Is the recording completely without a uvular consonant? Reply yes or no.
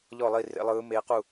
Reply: no